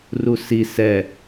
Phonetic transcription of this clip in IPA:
r u s i s ɛ

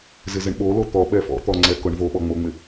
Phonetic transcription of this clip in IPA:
z ɪ z ɪ ɳ ɓ o l o t̪ ɔ ɓ ɛ f ɔ̰ t̪ ɔ ŋ͡ǀ ɛ k ʊ ɳ v o ɓ ɔ ŋ͡m o ŋ͡m ɪ

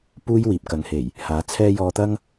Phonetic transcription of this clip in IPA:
p uː˥ j w iː˨ p̚ k ɐ˨˧ ŋ h e˨˩ j | h aː˨˥ t͡sʰ ɛː˥ j ɔː˧ t̪ ɐ˥ ŋ

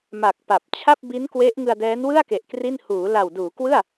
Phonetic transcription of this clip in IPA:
m a˨˩ k̚ p a˨˩ p̚ t͡ɕʰ a˥˩ p̚ b i˦˥ n k w e˦˥ ʔ ŋ ɯ˧ a̯ d ɛː˦˥ n w ɯ˥˩ a̯ k e˨˩ ʔ k r i˥˩ n h uː˩˦ l a˨˩ w d uː˩˦ k w ɯ˥˩ a̯

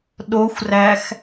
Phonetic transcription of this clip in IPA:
ɗ o xʷ r æ x

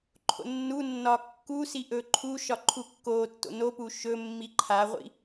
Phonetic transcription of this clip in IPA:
ǃʰ o̰ nː u nː ɒ kː u s i ʔ ɵ ǃʰ u ʃ ɒ ǃʰ u kː o tː o̰ n o p u ʃ ɵ mː i ǃʰ a ʁʷ ḭ

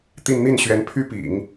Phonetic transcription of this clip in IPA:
t̪ i˥˧ n n̪ i˥˩ n ɕ ɥ ɛ˧˥ n pʰ y˥ p ḭ˨˩˦ ŋ

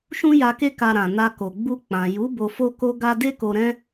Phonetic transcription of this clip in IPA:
ʃ ũ˦ j a˧ k e˦ k a˧ ɾ ã˨ n a˧ k o˨ ɡ͡b u˧ k͡p ã˨ j u˨˦ b o˧ f o˦ k o˦ ɡ a˦ d e˦ k o˧ ɾ ɛ̃˦

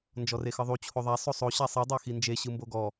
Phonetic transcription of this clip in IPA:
n d͡ʒ ɔ r e x ɯ ðˤ u t͡ɕʰ o ðˤ a sˤ o sˤ o ɕ a sˤ i dˤ a x i n d͡ʒ e ɕ ɯ m b o ɡ ɔ

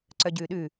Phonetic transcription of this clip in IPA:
ǀ œ ɟ ʉː ɗ ʉ

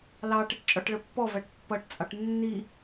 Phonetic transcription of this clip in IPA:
l ɑ ʈ ɪ ʈ t͡ʃʼ ɔ ʈ ɭ ə pː ɔ v æ ʈ pː ʌ ʈ t͡sʼ ɑ ʈ nː i

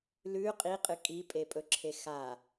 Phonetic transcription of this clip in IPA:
l ʉ qʼ i qʼ ɨ kʼ i pʼ e pʼ ɵ ǁʰ e x a

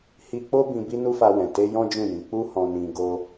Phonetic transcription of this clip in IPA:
h i˧ k͡p o˦ b ĩ˧ b i˦ n u˦ f a˧ w ɛ̃˨ t e˧ j ɔ̃˦ d͡ʒ ũ˦˨ j ĩ˨˦ k͡p u˦ h ɔ̃˧ n ĩ˧ ɡ o˦

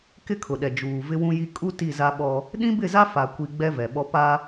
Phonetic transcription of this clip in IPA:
k ɪ˦ kʰ ʊ˨ ɗ ɛ˨ d͡ʒ uː˨ v ɪ˦ w ũ˦ j i˦ kʼ u˦ t i˦˨ z a˦ ɓ ɔ˦ | ɗ ĩ˦ b ɪ˦˨ z a˦ f a˨ kʷ i˨ ɡ͡b ɛ˦ v ɛ˨ ɓ ɔ˦ p a˦

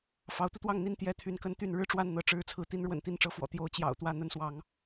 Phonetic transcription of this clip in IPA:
f ɑ˨˦ ʊ̯ t̪ u˧ t̪ w ɑ˥˨ ŋ n̪ i˥˨ n t̪ j ɛ˥˨ t̪ʰ y˨˦ n k ə˦ n t̪ y˥˨ n ɻ ɻ̩˦ ʈ͡ʂ w a˥˨ n n̪ ɤ˥˨ ʈ͡ʂ ɻ̩˥˨ t͡sʰ ɹ̩˥˨ t̪ i˦ n ɻ w ə̰˨˩ n t̪ i˥˨ n ʈ͡ʂ ɤ˥˨ f w ɔ̰˨˩ t̪ j o˦ ʊ̯ t͡ɕ j ɑ̰˨˩ ʊ̯ t̪ w ä˥˨ n̪ ə˨˦ n s w ɑ˨˦ ŋ

